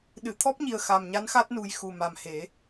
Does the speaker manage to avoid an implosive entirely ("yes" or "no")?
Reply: no